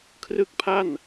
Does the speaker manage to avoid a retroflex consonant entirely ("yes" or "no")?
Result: yes